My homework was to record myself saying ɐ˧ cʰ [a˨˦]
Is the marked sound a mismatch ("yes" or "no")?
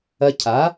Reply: no